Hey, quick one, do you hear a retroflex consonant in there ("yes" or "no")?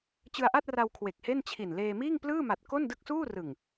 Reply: no